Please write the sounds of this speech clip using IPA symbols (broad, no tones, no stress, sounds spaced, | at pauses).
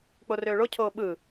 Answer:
k͡p o r øː ɭ o cʰ oː ɓ ɯ